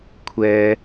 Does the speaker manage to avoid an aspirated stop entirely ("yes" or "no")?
no